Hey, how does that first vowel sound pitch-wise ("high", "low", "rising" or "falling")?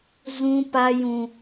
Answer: high